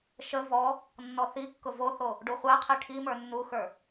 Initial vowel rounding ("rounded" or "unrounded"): unrounded